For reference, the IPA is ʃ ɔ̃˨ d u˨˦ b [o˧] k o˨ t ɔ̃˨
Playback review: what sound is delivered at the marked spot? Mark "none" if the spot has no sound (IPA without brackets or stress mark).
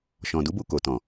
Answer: u˧